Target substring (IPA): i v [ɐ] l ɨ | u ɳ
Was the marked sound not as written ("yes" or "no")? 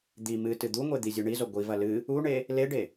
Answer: no